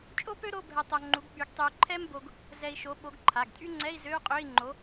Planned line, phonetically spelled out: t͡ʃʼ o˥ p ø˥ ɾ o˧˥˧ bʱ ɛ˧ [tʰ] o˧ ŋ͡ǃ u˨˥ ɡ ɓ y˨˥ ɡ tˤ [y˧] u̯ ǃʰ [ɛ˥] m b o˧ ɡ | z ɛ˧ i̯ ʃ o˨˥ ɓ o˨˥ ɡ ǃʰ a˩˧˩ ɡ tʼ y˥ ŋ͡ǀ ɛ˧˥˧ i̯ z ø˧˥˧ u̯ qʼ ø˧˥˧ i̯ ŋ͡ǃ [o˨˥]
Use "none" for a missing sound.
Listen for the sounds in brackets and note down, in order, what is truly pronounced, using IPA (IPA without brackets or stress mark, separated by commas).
tˤ, y˧, ɛ˥, o˨˥